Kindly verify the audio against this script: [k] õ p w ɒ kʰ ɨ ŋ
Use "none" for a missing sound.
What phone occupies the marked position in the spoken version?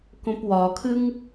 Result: k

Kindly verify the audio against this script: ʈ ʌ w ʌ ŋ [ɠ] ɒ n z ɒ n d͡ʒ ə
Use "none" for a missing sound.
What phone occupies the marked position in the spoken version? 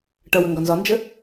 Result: ɡ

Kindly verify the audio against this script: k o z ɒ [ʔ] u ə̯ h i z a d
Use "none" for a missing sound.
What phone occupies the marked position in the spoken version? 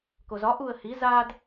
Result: ʔ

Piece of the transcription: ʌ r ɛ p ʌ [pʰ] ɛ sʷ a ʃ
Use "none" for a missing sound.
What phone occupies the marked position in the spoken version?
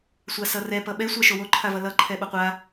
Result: ɓ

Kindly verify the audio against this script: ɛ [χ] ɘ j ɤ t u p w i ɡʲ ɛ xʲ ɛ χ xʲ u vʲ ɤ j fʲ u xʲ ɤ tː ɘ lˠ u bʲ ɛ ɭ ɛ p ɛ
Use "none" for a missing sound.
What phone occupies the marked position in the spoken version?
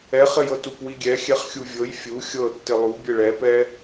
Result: χ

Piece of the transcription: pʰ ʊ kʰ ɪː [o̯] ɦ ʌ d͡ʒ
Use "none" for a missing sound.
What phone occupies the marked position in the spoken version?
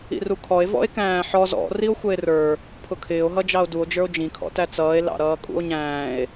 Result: o̯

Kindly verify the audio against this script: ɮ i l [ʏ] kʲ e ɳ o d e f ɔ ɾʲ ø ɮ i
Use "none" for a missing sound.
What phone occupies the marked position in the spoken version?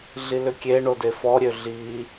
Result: ʏ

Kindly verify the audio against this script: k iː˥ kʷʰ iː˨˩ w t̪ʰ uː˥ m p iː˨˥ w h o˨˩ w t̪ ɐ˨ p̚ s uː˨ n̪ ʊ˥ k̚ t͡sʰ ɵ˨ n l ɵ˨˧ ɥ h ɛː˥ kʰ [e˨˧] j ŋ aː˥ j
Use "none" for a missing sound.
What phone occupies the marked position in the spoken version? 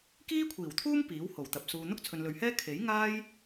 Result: e˨˥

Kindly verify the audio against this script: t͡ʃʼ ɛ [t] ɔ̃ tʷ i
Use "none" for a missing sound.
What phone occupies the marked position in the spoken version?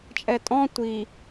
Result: tʼ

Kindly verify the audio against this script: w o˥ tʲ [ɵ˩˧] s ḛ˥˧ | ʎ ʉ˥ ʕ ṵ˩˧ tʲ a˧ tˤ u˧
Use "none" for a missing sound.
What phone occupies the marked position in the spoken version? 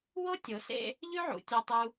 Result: o˩˧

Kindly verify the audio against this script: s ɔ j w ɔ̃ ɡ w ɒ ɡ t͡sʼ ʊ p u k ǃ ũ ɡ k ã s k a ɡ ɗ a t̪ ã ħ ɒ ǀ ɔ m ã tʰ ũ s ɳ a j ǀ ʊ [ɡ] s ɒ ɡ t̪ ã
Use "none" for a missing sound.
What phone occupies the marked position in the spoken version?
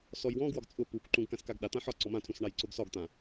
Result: ɡ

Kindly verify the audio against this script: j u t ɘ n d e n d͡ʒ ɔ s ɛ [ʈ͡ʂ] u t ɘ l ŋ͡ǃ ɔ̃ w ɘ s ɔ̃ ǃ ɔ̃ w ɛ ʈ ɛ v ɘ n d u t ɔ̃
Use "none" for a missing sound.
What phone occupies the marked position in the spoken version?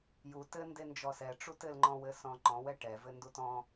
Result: ʈ͡ʂ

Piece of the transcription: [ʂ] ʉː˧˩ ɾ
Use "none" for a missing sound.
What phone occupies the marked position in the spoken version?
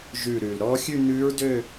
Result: ʒ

